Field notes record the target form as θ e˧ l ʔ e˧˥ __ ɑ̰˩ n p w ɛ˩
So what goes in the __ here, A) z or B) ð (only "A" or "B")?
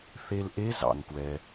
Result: A